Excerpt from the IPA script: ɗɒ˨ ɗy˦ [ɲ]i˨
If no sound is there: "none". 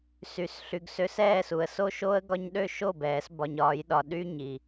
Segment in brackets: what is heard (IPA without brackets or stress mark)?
ɲ